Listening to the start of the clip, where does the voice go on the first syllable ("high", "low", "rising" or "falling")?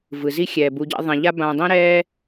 low